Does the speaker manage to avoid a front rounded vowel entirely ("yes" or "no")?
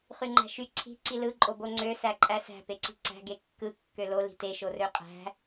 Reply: no